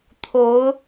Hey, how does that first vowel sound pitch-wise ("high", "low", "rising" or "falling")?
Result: rising